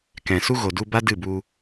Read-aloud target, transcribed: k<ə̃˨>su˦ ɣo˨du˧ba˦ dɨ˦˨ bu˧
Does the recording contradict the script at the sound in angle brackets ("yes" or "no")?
yes